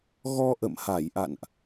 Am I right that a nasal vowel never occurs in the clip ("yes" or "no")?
yes